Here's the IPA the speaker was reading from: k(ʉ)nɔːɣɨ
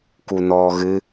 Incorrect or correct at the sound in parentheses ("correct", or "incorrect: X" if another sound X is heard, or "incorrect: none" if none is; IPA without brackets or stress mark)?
incorrect: u